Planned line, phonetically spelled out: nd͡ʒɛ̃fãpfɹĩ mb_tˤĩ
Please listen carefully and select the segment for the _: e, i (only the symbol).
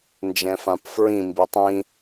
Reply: i